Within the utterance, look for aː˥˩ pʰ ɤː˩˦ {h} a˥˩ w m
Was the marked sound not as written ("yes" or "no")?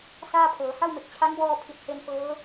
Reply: no